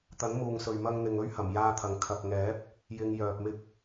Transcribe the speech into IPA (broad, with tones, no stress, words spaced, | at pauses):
t̪ɐ˨˥nmuː˨ŋsɵ˨ɥ mɐ˧ŋn̪ɪ˨ŋ ɵ˥ɥhɐ˨˩m jaː˧t̪ʰɐ˨ŋ kʰɐ˨k̚ŋɛː˨˥p̚ | jɪ˧ŋ jœː˨p̚mɪ˥k̚